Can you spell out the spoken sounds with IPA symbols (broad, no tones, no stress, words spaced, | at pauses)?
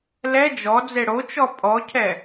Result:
lɛ d͡ʒɔ d͡zeɽot͡ʃɔ pʼɔcʰɛ